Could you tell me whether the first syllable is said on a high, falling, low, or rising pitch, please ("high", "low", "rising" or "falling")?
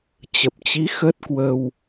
low